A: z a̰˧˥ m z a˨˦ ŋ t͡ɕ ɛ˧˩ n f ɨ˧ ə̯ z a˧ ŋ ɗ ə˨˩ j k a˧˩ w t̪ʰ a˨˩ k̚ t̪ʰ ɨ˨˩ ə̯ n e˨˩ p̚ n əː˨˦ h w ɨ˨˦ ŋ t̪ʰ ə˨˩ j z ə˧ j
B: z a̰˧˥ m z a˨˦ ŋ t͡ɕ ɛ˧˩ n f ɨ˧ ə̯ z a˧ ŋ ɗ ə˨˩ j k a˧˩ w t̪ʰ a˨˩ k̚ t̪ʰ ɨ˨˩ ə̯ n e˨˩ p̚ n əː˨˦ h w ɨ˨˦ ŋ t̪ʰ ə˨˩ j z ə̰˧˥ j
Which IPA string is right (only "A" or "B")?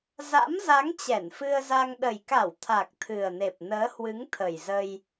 A